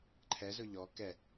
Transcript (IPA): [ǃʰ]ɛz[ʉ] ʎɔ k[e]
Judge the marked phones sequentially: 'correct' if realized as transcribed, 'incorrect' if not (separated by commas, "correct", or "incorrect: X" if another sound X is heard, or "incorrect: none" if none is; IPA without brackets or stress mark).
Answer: correct, incorrect: ʊ, incorrect: ɛ